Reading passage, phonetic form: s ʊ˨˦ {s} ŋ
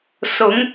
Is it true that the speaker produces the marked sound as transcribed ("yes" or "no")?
no